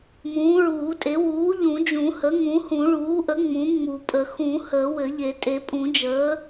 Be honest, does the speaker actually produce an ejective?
yes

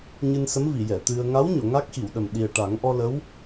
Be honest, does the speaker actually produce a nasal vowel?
no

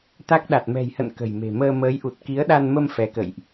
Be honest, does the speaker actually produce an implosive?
yes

